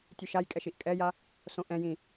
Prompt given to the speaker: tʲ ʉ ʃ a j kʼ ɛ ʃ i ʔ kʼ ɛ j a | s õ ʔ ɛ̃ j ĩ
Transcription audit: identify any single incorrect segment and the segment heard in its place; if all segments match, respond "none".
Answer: none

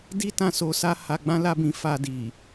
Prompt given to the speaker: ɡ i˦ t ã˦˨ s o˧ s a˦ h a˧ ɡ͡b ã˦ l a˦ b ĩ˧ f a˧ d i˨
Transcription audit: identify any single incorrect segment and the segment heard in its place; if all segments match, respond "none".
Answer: ɡ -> d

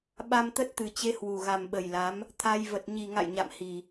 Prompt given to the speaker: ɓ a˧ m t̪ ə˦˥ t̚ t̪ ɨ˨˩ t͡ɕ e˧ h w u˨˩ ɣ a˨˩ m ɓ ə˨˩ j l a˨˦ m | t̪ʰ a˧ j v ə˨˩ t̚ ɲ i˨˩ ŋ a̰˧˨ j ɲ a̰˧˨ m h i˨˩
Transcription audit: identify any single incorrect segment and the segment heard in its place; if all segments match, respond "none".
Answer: none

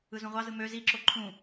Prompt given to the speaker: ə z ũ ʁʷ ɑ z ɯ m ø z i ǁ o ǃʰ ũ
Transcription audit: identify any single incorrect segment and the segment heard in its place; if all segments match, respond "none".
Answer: ə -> ɯ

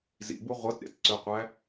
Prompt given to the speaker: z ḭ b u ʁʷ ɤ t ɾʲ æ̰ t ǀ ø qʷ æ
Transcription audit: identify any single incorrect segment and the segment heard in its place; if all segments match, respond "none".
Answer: none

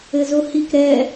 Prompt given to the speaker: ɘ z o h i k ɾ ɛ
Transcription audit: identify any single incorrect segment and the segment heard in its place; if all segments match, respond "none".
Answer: none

